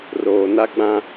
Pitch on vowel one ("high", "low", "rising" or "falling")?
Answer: low